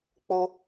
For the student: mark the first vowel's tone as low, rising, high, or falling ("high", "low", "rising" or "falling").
high